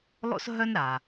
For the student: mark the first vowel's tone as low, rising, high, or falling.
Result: high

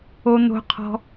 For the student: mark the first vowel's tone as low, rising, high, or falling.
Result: high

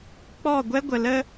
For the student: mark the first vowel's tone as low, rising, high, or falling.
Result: falling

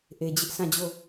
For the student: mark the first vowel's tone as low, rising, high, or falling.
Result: low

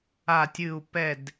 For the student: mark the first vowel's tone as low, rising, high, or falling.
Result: falling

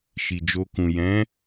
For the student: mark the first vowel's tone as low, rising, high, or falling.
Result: low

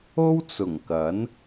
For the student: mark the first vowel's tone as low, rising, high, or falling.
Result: high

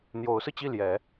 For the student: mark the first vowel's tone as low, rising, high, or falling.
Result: rising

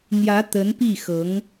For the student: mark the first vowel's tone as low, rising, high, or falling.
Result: rising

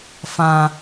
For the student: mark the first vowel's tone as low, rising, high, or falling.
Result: low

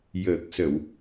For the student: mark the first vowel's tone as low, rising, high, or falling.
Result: low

